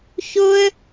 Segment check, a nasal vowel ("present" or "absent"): absent